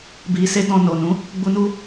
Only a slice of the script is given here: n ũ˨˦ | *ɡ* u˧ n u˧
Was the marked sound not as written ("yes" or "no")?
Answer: yes